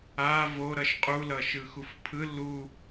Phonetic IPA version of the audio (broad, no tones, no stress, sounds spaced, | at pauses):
a v o ɾ ʌ ʃ qʼ u l ʌ ʃ ɯ x u f pʰ ɯ l u